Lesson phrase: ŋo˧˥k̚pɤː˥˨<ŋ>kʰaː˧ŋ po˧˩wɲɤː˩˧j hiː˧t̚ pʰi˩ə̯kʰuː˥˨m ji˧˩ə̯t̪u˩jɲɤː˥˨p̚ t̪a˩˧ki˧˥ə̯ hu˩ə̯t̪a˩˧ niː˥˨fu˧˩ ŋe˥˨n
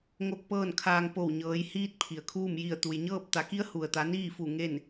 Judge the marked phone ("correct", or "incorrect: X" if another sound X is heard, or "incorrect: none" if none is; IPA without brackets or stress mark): incorrect: n